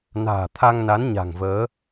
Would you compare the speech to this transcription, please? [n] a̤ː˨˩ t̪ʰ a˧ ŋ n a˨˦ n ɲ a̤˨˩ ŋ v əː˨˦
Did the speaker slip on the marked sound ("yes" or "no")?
no